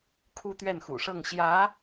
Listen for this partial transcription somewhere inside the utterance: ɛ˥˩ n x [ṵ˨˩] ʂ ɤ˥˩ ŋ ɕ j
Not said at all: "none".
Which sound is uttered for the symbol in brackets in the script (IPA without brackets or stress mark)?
ṵ˨˩